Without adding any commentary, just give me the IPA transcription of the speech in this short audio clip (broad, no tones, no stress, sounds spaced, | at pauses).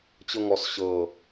t͡ɕ ɤ ŋ ɔ s ɕ ɤ